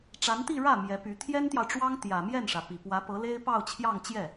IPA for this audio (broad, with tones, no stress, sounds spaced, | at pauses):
ʈ͡ʂ a˧˥ n t̪ i˥˧ ɻ ä˥˩ m j ɛ˧˥ p y˧˥ t̪ʰ j ɛ˥ n t̪ j ɑ˨ ʊ̯ ʈ͡ʂ w ɑ˥ ŋ t̪ j ä˨˩ m j ɛ˥˩ n ʂ ä˩ p i˨˩ p w ä˧˥ p ɤ˧˥ l e˥ ɪ̯ p ɑ˥˧ ʊ̯ t͡ɕʰ j ɑ˥˧ ŋ t͡ɕ j ɛ˥˩